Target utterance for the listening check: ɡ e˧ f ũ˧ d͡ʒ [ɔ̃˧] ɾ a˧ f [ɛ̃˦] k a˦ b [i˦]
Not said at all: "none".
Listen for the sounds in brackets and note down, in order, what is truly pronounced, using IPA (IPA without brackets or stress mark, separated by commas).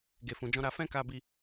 ɔ̃˦, ɛ̃˦, i˦